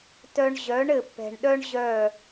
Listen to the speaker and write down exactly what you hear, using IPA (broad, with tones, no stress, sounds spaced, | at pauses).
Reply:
t œ˦ ɳ ʑ œ˨˦ ɳ ɘ˨ pː ɛ̤˨ ɳ ɗ œ˦ ɳ ʑ œ˦˨